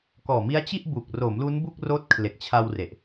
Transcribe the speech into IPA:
k ɔː˨˩ m i˦˥ a̯ t͡ɕ i˥˩ ʔ b u˨˩ k̚ r o˩˦ m l u˦˥ n b u˥˩ k̚ r oː˦˥ t̚ kʰ l e˨˩ k̚ t͡ɕʰ a˧ w r e˨˩ ʔ

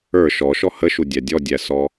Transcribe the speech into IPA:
ə˞ ʃ ɔ ʃ ɔ h ə ʃ u dʲ æ dʲ ɔ dʲ æ s ɔ

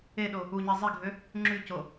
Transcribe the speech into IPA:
e ɗ o | u ɲ i zˤ i ɡʱ ø | ŋ͡ǁ y c o

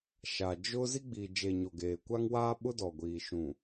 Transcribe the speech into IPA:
ʃ a˨ d͡ʒ ʊ˦ z i˦ ɡ͡b i˨ d͡ʒ e˨ ɲ o˨ ɡ eː˨ kʷ a˦ ŋ w aː˦ ɓ ʊ˦ d ɔ˨ ɡʷ iː˨ ʃ ũ˨

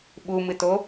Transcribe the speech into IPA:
ɓ u m ɨ t o

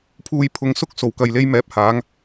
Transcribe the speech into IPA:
pʰ uː˨ j pʰ ʊ˨ ŋ s ʊ˧ k̚ s o˨˩ w k ɐ˨ j l e˧ j m ɛː˨ p̚ h aː˨˧ ŋ

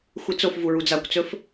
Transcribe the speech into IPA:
xʷ i t͡s o f v u ɹ u d͡z a kʷ t͡s ɵ f

